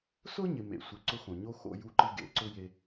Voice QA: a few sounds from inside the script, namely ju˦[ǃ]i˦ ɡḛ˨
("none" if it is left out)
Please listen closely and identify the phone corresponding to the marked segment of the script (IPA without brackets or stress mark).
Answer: ǃ